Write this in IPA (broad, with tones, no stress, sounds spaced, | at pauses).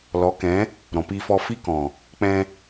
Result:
l ɔ˨˦ k ɛ̃˨˦ | ɾ ɔ̃˨ p iː˧ f ɔ˧ f i˦ k ɔ̃˨ | k͡p ɛ̃˧